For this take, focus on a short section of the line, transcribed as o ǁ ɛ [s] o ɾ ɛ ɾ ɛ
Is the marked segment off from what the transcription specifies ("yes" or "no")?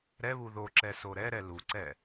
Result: no